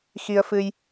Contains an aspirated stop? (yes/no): no